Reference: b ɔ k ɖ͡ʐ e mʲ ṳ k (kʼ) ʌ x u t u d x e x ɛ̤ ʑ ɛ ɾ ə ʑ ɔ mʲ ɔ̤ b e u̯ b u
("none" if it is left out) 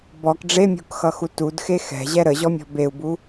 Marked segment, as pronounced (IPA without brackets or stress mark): x